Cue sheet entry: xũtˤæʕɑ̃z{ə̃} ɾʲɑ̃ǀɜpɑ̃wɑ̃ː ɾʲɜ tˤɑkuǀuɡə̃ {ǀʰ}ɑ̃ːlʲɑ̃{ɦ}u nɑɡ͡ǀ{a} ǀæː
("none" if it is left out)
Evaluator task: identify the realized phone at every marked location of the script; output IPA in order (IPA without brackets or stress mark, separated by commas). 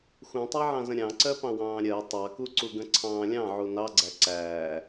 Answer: ə̃, ǀʰ, ʕ, æ